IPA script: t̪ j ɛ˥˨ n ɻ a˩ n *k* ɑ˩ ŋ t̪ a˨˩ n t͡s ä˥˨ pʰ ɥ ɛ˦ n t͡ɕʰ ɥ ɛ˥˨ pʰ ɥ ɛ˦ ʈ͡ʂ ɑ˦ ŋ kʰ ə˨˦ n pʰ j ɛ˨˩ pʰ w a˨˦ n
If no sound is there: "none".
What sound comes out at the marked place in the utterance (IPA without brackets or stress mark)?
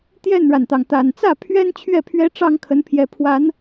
t̪